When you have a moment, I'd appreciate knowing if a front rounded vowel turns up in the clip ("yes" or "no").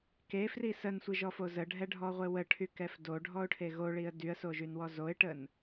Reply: yes